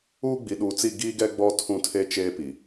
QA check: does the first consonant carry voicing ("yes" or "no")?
yes